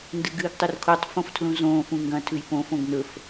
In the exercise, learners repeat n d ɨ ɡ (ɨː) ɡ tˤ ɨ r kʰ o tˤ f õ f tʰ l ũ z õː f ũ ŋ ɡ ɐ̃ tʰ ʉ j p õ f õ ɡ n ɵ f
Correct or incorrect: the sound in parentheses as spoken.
correct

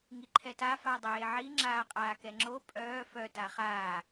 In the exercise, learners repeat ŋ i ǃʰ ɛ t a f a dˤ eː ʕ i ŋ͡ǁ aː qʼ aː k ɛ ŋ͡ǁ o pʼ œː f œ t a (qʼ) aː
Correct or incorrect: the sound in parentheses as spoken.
incorrect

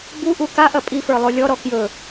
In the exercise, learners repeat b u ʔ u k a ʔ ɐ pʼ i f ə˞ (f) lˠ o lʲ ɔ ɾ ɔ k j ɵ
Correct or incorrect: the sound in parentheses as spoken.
incorrect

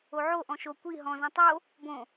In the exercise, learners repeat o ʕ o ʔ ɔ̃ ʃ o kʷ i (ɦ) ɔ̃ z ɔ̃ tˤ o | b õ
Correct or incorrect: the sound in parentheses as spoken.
correct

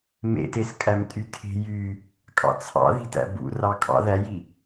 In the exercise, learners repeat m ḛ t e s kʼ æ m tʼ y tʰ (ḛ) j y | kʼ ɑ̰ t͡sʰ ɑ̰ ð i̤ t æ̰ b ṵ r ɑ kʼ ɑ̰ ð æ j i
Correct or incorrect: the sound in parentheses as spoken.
incorrect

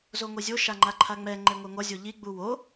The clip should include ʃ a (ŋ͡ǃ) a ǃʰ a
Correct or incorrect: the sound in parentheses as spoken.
correct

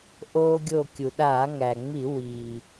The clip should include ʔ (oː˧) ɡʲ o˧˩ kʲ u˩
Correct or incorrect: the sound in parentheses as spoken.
correct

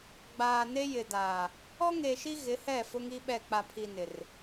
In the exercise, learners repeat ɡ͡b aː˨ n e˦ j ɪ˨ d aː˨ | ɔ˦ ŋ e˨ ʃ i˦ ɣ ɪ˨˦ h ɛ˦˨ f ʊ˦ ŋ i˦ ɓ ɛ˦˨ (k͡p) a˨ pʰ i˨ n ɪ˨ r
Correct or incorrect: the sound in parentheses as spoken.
correct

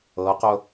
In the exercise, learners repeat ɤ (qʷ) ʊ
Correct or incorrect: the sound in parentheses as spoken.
incorrect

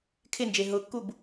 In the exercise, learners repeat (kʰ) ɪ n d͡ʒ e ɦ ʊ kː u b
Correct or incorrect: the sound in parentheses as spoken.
correct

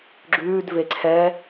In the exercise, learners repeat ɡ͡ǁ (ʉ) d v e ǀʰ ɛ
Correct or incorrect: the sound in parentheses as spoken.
incorrect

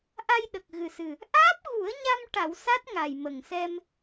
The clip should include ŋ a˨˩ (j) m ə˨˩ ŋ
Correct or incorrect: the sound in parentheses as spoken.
correct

